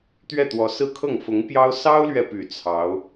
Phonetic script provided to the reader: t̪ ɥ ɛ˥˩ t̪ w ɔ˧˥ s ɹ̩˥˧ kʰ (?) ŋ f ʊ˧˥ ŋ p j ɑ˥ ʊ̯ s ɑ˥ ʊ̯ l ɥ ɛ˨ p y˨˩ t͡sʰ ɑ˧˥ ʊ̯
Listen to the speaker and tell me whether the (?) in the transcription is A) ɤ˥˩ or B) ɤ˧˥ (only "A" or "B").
A